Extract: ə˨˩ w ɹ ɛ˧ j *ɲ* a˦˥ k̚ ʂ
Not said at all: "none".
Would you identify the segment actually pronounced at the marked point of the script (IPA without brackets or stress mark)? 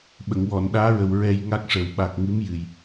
ŋ